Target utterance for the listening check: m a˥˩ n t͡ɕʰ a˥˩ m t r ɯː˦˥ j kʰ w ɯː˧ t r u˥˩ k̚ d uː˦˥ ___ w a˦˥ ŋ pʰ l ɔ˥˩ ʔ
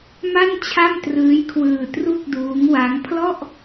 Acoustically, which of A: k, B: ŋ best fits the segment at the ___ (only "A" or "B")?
B